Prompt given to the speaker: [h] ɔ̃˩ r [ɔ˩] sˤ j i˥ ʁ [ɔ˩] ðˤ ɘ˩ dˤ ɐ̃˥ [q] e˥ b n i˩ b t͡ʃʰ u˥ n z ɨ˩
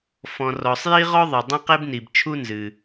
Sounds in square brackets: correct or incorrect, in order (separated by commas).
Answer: incorrect, correct, incorrect, correct